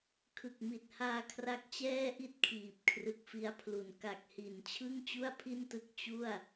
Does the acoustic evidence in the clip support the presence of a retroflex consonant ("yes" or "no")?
no